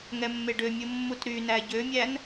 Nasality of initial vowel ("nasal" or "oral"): oral